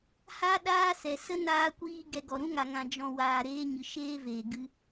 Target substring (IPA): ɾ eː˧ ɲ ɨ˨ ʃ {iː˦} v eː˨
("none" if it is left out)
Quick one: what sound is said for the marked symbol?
eː˦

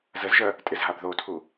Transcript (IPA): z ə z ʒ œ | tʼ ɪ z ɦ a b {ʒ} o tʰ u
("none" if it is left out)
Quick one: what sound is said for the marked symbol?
ð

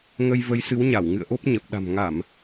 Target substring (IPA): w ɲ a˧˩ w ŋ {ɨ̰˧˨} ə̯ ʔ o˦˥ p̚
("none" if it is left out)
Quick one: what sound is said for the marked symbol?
ɨ̰˧˨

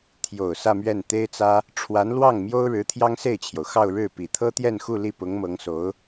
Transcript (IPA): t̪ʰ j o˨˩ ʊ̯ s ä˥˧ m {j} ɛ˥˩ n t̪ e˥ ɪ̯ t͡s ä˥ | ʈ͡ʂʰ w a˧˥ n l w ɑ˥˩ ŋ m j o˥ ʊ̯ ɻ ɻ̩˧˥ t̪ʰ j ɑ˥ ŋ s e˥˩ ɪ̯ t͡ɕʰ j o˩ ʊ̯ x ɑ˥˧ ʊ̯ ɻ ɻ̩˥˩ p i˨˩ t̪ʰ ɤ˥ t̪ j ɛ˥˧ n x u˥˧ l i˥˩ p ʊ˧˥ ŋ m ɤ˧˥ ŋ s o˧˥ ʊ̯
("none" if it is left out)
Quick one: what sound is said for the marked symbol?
ɥ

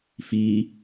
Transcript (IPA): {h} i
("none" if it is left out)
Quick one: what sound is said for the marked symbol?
f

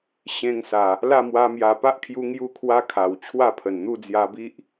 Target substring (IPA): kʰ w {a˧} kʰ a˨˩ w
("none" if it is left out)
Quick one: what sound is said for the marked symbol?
a˦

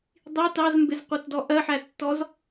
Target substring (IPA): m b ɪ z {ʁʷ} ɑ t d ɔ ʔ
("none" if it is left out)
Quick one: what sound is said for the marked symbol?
qʷ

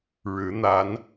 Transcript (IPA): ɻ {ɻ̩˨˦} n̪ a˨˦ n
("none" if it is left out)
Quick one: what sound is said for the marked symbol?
ɻ̩˨˦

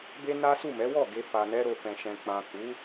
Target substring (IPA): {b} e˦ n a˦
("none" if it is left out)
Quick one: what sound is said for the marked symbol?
b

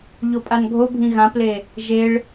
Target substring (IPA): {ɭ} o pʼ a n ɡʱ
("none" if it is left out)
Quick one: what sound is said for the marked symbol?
ʎ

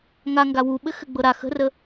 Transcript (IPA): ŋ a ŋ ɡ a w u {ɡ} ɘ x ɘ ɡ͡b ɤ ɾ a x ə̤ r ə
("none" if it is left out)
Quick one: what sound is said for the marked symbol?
ɓ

